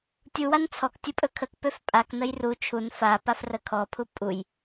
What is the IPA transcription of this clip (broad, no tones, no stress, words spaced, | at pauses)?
tʲuwan t͡sʰɔktʲu pʼɵkʰəkpøf pʼaknəj ru t͡ʃʰun fapaf rəkʰɔpʰu pʼuj